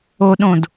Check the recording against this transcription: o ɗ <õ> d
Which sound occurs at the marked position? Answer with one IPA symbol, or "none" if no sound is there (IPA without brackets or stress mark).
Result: õ